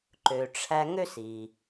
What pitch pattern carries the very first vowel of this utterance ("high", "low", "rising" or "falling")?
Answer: low